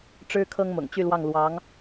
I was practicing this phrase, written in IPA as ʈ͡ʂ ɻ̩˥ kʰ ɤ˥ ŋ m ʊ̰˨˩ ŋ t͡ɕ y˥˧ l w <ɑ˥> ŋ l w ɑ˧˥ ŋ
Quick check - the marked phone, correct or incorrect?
incorrect